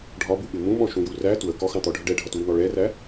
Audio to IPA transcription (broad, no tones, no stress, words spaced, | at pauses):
ɖʱɒbuɓɪ mũɓɔ̃ʃũju ræ twə kɔxɑ̃t̪ɔɖʱə ɖɛɖʱʌtwin̪ɔ ɭɛræ